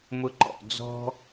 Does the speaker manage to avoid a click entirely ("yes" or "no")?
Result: no